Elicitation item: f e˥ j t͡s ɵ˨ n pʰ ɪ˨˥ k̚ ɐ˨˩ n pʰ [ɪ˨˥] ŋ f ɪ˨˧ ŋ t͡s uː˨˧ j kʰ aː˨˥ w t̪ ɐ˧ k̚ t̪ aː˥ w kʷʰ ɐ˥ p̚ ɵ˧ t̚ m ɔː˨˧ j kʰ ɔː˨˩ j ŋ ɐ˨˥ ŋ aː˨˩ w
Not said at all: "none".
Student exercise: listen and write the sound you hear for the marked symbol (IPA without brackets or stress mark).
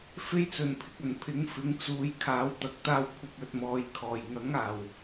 ɪ˨˥